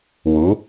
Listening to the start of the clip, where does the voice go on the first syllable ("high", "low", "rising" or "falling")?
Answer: rising